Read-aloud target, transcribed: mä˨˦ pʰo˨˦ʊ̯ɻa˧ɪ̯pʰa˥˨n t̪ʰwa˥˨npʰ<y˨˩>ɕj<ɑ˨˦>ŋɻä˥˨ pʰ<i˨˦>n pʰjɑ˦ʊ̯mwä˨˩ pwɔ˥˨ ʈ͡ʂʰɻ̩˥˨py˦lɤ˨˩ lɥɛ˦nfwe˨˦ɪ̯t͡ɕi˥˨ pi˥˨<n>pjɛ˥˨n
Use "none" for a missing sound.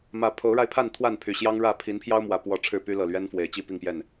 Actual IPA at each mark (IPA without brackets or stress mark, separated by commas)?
y˨˩, ɑ˦, i˨˦, ŋ